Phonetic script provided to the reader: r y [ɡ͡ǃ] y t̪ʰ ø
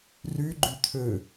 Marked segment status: correct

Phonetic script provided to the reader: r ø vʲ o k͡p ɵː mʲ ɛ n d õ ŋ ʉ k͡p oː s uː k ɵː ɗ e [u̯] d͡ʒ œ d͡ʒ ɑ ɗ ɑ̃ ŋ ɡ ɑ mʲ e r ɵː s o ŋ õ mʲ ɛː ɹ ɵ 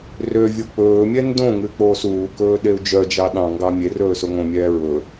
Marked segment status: correct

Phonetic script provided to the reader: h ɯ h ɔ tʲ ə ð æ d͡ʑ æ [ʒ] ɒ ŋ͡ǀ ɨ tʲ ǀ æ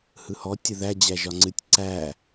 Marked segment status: correct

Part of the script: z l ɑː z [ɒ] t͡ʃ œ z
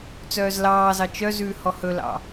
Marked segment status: incorrect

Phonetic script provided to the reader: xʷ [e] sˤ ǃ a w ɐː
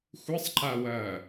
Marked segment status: incorrect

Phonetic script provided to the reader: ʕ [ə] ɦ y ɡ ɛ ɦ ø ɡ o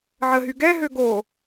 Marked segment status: correct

